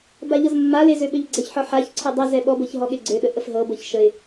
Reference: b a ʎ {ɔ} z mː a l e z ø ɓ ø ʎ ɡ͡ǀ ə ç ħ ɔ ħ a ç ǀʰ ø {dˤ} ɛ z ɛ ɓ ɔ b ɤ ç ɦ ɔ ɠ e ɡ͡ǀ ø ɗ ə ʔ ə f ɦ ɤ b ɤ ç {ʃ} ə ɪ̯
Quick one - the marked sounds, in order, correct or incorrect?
incorrect: ɤ, correct, correct

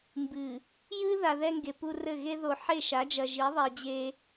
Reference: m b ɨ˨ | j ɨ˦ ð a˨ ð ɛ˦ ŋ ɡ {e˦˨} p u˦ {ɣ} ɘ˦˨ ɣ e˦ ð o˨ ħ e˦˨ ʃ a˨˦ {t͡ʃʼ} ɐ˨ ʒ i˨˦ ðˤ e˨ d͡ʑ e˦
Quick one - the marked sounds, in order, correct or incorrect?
incorrect: e˨, incorrect: r, incorrect: d͡ʒ

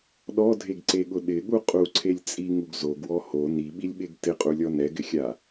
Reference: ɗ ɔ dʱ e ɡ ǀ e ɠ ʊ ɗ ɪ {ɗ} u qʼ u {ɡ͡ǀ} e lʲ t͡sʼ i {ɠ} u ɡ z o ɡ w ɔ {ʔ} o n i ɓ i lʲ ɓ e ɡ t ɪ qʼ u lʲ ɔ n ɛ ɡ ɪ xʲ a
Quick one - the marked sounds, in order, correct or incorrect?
incorrect: ɠ, incorrect: ǀʰ, incorrect: ŋ, incorrect: h

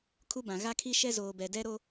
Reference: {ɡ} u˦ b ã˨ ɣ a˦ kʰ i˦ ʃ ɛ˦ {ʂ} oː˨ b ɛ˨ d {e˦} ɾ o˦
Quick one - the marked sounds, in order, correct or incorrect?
incorrect: kʰ, incorrect: z, incorrect: ɛ˦

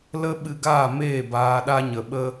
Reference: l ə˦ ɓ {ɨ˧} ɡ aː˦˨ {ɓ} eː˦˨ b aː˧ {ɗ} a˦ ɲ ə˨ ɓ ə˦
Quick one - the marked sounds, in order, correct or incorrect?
correct, incorrect: m, correct

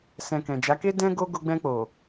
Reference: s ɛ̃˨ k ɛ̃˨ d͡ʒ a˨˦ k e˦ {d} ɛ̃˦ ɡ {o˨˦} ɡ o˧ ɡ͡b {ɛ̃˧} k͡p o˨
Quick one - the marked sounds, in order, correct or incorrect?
correct, incorrect: o˦, correct

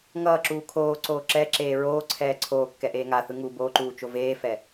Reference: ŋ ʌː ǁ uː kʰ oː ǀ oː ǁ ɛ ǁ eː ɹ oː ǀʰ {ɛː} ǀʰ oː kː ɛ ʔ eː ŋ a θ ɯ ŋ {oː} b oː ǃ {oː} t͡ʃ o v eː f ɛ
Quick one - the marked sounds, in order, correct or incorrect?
correct, incorrect: uː, incorrect: uː

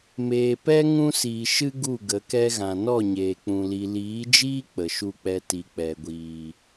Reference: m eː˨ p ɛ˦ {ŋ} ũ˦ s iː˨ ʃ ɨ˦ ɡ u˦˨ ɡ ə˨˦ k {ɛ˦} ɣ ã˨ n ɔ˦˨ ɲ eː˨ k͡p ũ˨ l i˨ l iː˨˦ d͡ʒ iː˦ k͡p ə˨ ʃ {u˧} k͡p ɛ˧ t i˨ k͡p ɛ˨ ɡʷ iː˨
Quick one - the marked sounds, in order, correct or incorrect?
correct, correct, correct

